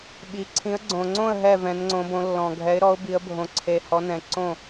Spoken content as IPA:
ɓi˨˦ ǀʰĩ˨˦ə̯ɡ͡ǀõ˨ŋ͡ǀõ˥˨ə̯ ɦɛ˥˨ vɛ̃˨˦nŋ͡ǀõ˨˦bõ˨˦ lːɔ̃˨ɡʱɛ˨˦ɪ̯ɾɔ˨˦ʊ̯ bi˨˦ə̯bʱõ˨˦ ǀʰe˨hɔ˨˦ nɛ̃˨ǀõ˥˨

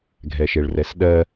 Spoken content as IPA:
ɡʱɛʃeɭrɛsɗɜ

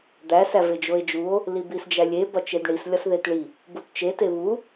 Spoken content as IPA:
d̪æs æved͡ʒoe̯d͡ʒuo̯ | libisd͡ʒælʲe bɒt͡ʃedɳis lʲɒsðetɭi | butt͡ʃe teβu

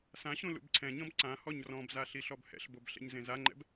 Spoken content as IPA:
sãɕũ lṵbǀʰɛ̃ɲɔ̃b ǀã hɔɲrɔ̃bza ɬiɬɔbhɛ̰ɬbob ɬɛ̰ɲzẽzaŋ͡ǃɛ̰b

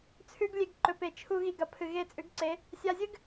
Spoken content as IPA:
t͡sʰʉ˦ɡlʲe˧ɡ ǃɵ˨pe˨ t͡ʃʰu˧ ɣi˧ɡɐ˨ pʰɨ˨ɣe˦˨t͡sʼʉ˨˦ɡǀe˨˦ | sʲa˧zʲɨ˦ɡ

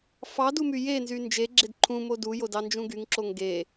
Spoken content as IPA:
fɑdumy jenzy nd͡ʒeɡ͡ǁed ǃʰũmo dujodɑnd͡ʒũ ɡyŋǁoŋ ɡe

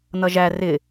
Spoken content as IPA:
nʌʒæ rɪ

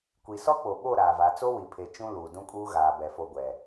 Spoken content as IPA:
kʷi˨ sɔ˦k͡po˨ɓo˦˨ ɾaː˨va˨˦ t͡so˦wi˨pʰe˨ t͡ʃũ˦luː˨dũ˦kʼuː˦ ɣaː˨bɛ˨ fo˨ ɡʷɛ˨

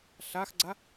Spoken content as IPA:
ɬaxɡ͡ǀa

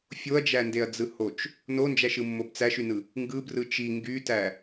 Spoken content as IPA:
fʲoɐ̯d͡ʒændeɐ̯d͡zɯ hot͡ʃ | nond͡ʒæʃɯmːob t͡sæʃynɯ | ŋɡɯbrɯ t͡ʃi ŋɡytæ

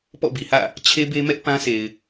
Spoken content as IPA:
pɔ̰˦˨bi˨hä̰˦˨ | t͡ɕʰe˦be˦mɛ˦ʔ pã˦se˨ɪ̯

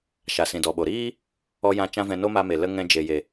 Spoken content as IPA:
ʃa˨sĩ˨dɔ˨ɓo˨ ɾiː˦ | ɔ˧jã˧ t͡ʃã˦vɛ̃˧ no˦ma˧me˨ lə˦ ŋɛ̃˧d͡ʒe˨je˨

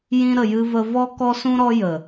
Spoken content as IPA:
jĩ˧ ɾə˨jɨ˧və˧ vɔ˧kɔ˧sũ˧ɾɔ˧ jə˨

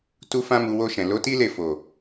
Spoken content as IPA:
tu˦fã˦mu˧ wo˧ʃɛ̃˨ lo˨˦ti˦ le˦˨fo˨

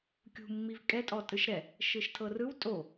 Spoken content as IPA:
kʲṳ mːivkʼɛ tʼɔtʼɯʃɾɛ | ʃɯʃtʰɤrɯw tʼo

